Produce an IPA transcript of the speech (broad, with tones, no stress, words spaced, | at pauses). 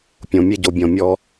pʲõ˨mʲe˧ɟo˨ bʲɔ̃˨mʲɔ˧